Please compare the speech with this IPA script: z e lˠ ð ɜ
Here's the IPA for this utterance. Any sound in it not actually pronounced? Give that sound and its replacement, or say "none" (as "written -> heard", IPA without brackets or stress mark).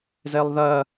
none